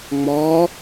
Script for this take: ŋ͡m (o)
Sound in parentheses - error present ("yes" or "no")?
yes